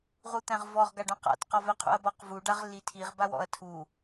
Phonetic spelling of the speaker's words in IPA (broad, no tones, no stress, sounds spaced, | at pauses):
ʁ u t̪ æ̃ ʁ v ɔ ʁ ɡ a ɖ ɔ̃ q a̰ t q ɔ v ɛ qʰ ṵ ɐ̯ b ɔ q v u ɖ a ʁ lː i tʰ i ʁ b a w ɔ̰ ɐ̯ tʰ u